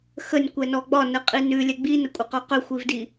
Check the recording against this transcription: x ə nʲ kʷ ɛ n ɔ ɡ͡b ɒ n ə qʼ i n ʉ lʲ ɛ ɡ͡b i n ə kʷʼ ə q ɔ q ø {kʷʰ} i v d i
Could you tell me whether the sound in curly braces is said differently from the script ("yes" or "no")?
yes